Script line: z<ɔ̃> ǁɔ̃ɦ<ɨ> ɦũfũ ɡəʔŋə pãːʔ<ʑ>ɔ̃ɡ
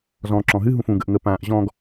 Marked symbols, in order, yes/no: yes, yes, yes

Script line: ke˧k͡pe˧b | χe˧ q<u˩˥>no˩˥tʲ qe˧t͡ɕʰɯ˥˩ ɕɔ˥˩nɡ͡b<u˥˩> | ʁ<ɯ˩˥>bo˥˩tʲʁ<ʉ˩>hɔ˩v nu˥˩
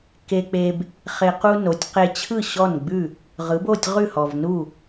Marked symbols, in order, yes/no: no, no, yes, no

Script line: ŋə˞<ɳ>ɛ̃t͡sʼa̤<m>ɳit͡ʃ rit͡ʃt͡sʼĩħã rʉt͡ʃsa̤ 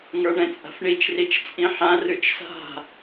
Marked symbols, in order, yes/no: yes, no

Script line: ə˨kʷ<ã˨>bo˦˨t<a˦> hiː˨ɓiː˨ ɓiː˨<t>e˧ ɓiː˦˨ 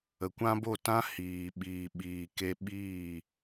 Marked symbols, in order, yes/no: no, no, no

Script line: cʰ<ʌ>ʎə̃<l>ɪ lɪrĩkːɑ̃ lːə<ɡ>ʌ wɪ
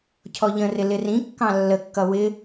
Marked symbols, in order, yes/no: no, no, no

